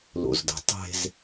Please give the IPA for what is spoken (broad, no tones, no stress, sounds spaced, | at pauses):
l o̰ z d ə̤ tˤ e̤ z